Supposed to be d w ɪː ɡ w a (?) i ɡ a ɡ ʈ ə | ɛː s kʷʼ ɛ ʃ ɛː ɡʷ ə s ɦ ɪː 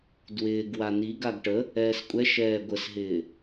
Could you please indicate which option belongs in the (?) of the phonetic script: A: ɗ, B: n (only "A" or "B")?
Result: B